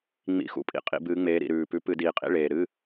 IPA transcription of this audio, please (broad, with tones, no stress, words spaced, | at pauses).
ŋ͡mḭ˧˥˧xṵ˧˩˧pʼḭ˨˦ qʼḭ˧˩˧bɨː˨˦ŋ͡meː˨˦ ɾḭ˨˩ɾʉː˨˩pʉ˨˦ pɨ˧˩˧diː˨˩qʼḭ˧˥˧ ɭeː˨˩ɾɨː˧˥˧